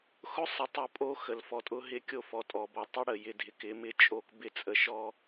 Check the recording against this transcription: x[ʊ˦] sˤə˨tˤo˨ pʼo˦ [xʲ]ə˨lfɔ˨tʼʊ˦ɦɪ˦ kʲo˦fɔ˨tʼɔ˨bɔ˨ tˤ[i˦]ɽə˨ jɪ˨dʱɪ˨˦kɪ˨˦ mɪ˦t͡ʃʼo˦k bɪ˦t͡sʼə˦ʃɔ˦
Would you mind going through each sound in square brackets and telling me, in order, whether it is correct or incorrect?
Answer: correct, incorrect, incorrect

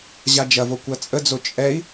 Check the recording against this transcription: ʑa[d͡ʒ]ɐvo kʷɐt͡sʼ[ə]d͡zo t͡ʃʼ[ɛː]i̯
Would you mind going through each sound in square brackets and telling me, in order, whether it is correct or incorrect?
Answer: correct, correct, incorrect

